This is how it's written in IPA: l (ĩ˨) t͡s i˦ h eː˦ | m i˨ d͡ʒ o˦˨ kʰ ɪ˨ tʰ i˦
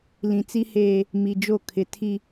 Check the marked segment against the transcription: correct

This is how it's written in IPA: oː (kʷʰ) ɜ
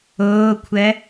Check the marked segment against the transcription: correct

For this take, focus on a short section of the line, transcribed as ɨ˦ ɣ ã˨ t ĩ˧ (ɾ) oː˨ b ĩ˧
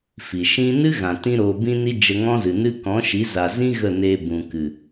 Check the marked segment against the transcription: correct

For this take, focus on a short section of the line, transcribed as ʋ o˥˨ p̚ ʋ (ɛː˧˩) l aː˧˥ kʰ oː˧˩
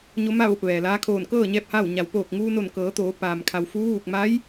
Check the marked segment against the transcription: incorrect: ɛː˩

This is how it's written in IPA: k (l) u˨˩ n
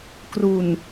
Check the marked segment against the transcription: incorrect: r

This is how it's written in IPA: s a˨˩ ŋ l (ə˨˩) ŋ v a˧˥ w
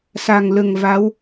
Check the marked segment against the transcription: correct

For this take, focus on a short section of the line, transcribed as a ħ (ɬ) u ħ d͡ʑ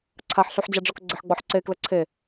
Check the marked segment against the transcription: correct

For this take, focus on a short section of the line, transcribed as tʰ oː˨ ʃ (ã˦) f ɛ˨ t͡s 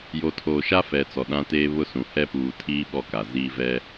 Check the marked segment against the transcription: incorrect: a˦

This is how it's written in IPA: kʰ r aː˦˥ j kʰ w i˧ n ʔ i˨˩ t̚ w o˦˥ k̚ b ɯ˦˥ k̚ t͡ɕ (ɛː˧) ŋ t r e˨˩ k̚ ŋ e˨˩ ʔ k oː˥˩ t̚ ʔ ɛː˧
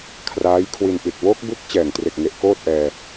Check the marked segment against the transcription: incorrect: ɛː˨˩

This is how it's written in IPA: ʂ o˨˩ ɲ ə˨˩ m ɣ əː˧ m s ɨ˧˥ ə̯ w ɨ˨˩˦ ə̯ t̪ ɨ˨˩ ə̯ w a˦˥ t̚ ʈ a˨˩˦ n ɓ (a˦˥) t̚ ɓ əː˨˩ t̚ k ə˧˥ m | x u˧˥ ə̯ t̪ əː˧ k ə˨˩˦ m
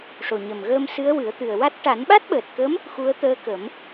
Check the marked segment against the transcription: correct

